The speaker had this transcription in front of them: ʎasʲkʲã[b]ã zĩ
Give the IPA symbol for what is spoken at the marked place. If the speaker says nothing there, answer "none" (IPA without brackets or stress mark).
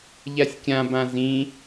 b